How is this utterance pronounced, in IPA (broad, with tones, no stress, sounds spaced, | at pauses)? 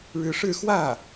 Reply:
ɻ ɻ̩˧˥ ʂ ɻ̩˥˧ x w ä˥˩